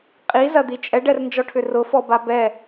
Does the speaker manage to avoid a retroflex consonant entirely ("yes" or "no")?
no